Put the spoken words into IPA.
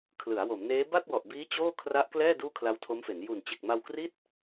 kʰ l ɯ˩˦ a̯ w o˩˦ m n eː˦˥ b a˥˩ t̚ w ɔ˨˩ ʔ b iː˦˥ t͡ɕ oː˥˩ kʰ r a˦˥ ʔ k l ɛː˥˩ d uː˥˩ kʰ l a˦˥ w tʰ o˦˥ m f e˩˦ n j u˨˩ n t͡ɕ e˨˩ k̚ m a˧ w k r i˥˩ t̚

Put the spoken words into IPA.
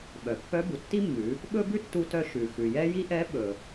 ɓ œ˩ pː œ˧˥ b u˩ tː i˥ mː ʉ˩˧ | ɓ ɵ˥ b ʉ˥ tː u˧ t œ˧ ʃ ʉ˩ x ʉ˩ j ɛ˥ j i˥ ʔ ɛ˧˥ ɓ ɵ˩

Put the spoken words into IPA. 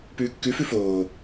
p ʉː kː ʉ f ʉ f oː

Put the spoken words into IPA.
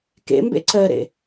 k ḛ m b ḛ ǀ ɜ ɾ ḛ

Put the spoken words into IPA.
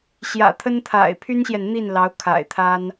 ɕ j ä̰˨˩ t̪ʰ ə˥ n t̪ʰ a̰˨˩ ɪ̯ pʰ y˥ n ɕ j ɛ˨ n n̪ i˥˩ n l ɑ˧˥ ʊ̯ kʰ a̰˨˩ ɪ̯ t̪ʰ a˥ n

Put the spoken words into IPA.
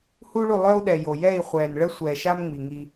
h u˦ ɭ u˦˨ lˠ œ˦ u̯ ɗ ɛ˨ j o˨ j ɛ˦˨ i̯ χʷ ɛː˨ n ɭ ə˦ sʷ ɛː˨ ʃ a˦ m ŋ͡m i˨ ŋ i˦

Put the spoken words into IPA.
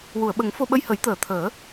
w u˨˩˨ ə̯ ɓ ə˨˩˦ ŋ f o˧ ɓ ə˧ j h ə˨˩˦ j t̪ əː˨˩˨ t̪ʰ əː˨˩˦

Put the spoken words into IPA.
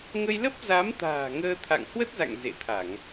ŋ ə˧ j l ə˦˥ p̚ z a˨˦ m t̪ a̤ː˨˩ ŋ əː˧ t̪ʰ a̰˧˨ ŋ h w ə˦˥ t̚ z a̰˧˨ ŋ z ḛ˧˨ t̪ʰ a˧˩˨ ŋ

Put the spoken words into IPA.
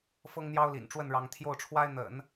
f ɤ˥ ŋ n̪ j ɑ˥ ʊ̯ l ḭ˨˩ n ʈ͡ʂ w ə˥˩ n ɻ ɑ˧˥ ŋ t̪ʰ j o˥˩ ʊ̯ ʈ͡ʂʰ w a˥ ɪ̯ n̪ ə̰˨˩˦ n

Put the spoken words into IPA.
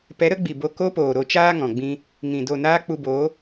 p ɛ˨˦ ɾ ə˨˦ ɡ͡b i˨ b o˧ k o˦ p oː˨ ɾ o˧ t͡ʃ aː˦ ŋ ɔ̃˨ ɡ͡b ĩ˦ | ŋ ĩ˨ d o˦˨ n aː˦ k͡p u˧ b oː˨˦

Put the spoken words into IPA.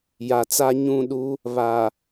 j a˨ t͡s a˦ ɲ ũ˦˨ ɗ u˦ | β a˨

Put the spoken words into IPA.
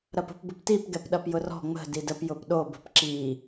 ɾ ɐ p ə̤ p b ə p t i p ɡ ɛ p ɗ ɐ p j ʊ r ɔ̤ ŋ͡m ə̤ d i d ə p j ʊ p ɗ o b ə̤ p ǁ i

